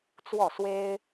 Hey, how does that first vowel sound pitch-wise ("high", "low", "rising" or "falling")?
falling